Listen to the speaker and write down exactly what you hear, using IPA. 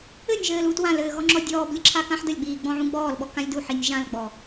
ɘ nʲ ʒ ɘː l u t w ã l ɘː ɣ ɔ ŋ͡ǁ ɔ dʲ ɔː b lʲ ə ǁʰ a k ã ħ d ə lʲ ɡ͡b iː ɡ͡b ɔ̃ ʕ ũ ɡ͡b ɔː l ɓ ɔ k ã lʲ d u ħ i nʲ ʒ ã l ɡ͡b ɔ

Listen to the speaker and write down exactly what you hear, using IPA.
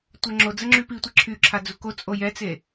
tʷ ɛ ŋ͡ǁ o d͡z ə ŋ͡ǁ y p i tʷ e ǁʰ y ǁʰ a d͡z u k o t͡sʼ o j ɛ t͡s e

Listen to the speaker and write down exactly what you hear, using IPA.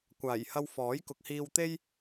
kʷ aː˨˩ j h ɐ˧ w f ɔː˨˥ j k ʊ˨˥ k̚ h iː˧ w t̪ e˥ j

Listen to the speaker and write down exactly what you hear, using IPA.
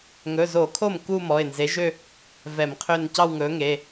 ŋ ɵ˩˧˩ z o˧˩˧ kʰ o˥˩ m k u˥˧ m ɔ˩˧˩ ɪ̯ n z e˨˥ ʒ ø˥˧ | v ɛ˧˩˧ m qʰ ø˥˧ n c ɑ˥˧ w ŋ ɵ˨˥ ŋ e˩˧˩

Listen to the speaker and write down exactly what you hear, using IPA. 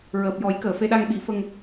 ɹ əː˨˩ p̚ j ɔ˨˩˦ j k əː˨˩˨ f e˧ ɗ a˧ ŋ ɓ i˨˩˦ f ə˧ ŋ

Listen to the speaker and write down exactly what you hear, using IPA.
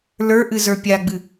l ə˞ ʔ ɨ z ə˞ pʲ a ɡ͡b ɨ

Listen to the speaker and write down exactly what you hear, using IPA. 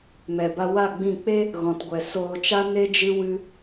m ɛ˨ b a˧ w a˦˨ ɡ͡b ĩ˦˨ k͡p e˦ | ɣ ɔ̃˨ t ɡʷ ɛ˨ s oː˧ t͡ʃ a˦ n e˦ d͡ʒ ɨ˦ w ɨ˦

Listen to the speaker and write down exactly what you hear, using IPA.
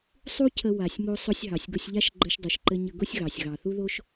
sˤ u˥ cʰ ə˧ w a˩ sʲ m o˧ sˤ ʊ˧ sʲ ɦ ɑ˩ sʲ ɡ ʊ˧ sʲ ʎ a˥ ʃ ɡ͡ǃ ɘ˧ ʃ dˤ u˩ ʃ ǃ ɘ˧ ɲ ə˧ ɡ ʊ˥ sʲ ɣ ɑ˩ sʲ ɣ ɑ˩ θ u˥ ð o˥ ʃ

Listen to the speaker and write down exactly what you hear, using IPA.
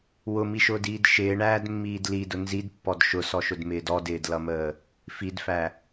w ʊ m i ʃ ʊː d iː d ʃ ɪː ɳ æː d mː iː d l i d ʊ n z i d pː ɔ d ʃ ʊ s ɔ ʃ ʊ d m ɪː d ɔ d ɪː d l ʌ m əː | f i d f æ

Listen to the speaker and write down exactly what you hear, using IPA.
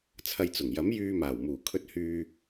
t͡sʰ ɐ˧ j t͡s ʊ˨˩ ŋ j ɐ˨˥ m j yː˧ m aː˨˩ w m uː˨˩ kʰ ɵ˧ t̚ h yː˧

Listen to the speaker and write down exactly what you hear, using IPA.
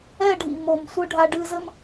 ɛ˦˨ ɖʱ ḭ˨ m o˨ m sʷ ɨ˧ ɖʱ a˧ ɖ ɨ˧ z ɘ˦ m

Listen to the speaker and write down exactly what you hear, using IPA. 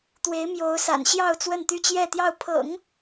t̪ w e˧˥ ɪ̯ m j o˧˥ ʊ̯ s a̰˨˩ n ɕ j ɑ˥˧ ʊ̯ t͡s w ə˥˧ n t̪ y˥˧ t͡ɕ j ɛ˥˧ t̪ j ɑ˥˩ ʊ̯ pʰ ɤ̰˨˩˦ ŋ

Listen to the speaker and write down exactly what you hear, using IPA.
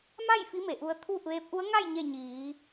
m a˥˨ j f i˧˥ m e˩ ʔ u˧ ə̯ t̪ʰ uː˥˨ p̚ ʋ eː˧˥ p̚ ʔ u˧˥ ə̯ ŋ a˥˨ j ɲ e˥˨ ɲ iː˩˧

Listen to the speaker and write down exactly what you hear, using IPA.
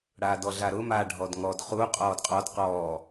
ɽ aː d ɔ ɮ a ɾ ʊ m a ɖʱ ɔ d ŋ ɔ d χ u qʼ ɔː d qʼ ɔ d q ɔː

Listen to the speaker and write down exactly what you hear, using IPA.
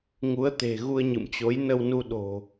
ŋ u˨˦ ə̯ t̪ e̤˨˩ ɣ u˧ ə̯ ɲ ɨ̰˧˨ m t͡ɕ o˨˦ j n ə˧ w n u˧ ɗ o̤˨˩

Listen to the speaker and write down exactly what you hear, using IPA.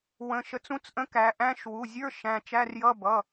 w ə̃˩˧˩ ʃ ə˩˧ t͡s ũ˧˥˧ t͡s ʔ ə̃˧˥˧ k æ˩˧ ʔ æ̃˧˥˧ ʃ w u˩˧˩ zʲ ə˞˧˥˧ ʃ æ̃˩˧˩ t͡ʃ æ˧˥˧ r j ʌ˧˥˧ b ʌ˩˧˩

